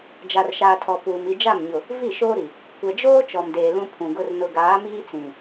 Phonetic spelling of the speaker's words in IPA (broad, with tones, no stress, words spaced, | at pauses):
d͡ʒa˨rʃaː˨ tʰɔ˨ puː˨m i˨d͡ʒa˦˨mɲʊ˨ | vi˦˨ʃoː˦ɾi˨ | kʷɛ˨d͡ʒoː˦ t͡ʃɔ˨mdeː˨ lũ˦pʰũ˨ɡʊ˦r nʊ˨ɡaː˨˦miː˦t͡sĩ˨